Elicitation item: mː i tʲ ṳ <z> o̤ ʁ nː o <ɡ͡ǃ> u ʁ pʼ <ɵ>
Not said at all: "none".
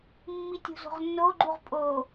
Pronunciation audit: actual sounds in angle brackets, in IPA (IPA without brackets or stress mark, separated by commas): z, ɡ͡ǃ, o